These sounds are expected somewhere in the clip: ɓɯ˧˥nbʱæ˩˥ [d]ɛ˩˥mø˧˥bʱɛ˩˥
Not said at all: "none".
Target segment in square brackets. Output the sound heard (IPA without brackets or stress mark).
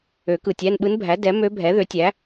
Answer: d